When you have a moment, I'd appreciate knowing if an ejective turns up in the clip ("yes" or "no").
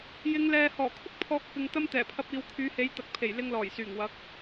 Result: no